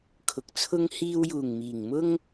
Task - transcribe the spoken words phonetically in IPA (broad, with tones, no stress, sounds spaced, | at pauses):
kʰ ʊ˨ k̚ t͡sʰ ʊ˥ ŋ h iː˧ w j uː˨˩ ŋ m iː˨˩ ŋ m ʊ˥ ŋ